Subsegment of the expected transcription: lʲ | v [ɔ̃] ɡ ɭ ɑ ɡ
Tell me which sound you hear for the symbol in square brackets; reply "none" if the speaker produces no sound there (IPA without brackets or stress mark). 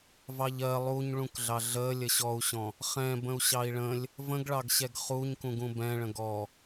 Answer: ə̃